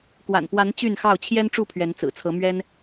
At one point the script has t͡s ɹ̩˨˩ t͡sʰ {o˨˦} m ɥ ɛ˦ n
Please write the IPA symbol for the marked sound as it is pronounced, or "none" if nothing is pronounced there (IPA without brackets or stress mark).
ɤ˨˦